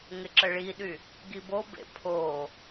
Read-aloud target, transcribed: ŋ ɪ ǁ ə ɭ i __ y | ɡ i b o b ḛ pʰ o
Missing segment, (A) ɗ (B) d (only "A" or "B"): A